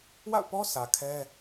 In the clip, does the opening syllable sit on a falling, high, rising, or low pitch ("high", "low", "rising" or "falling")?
falling